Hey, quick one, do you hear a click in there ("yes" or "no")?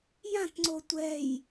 yes